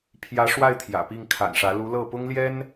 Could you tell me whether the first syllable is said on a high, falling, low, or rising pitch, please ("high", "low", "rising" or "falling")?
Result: rising